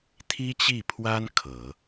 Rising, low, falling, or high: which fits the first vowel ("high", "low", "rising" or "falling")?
high